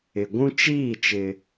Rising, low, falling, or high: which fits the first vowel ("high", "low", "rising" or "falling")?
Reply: low